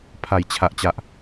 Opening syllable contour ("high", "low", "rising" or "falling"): falling